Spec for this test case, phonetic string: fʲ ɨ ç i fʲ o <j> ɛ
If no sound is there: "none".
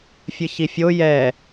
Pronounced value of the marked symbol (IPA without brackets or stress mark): j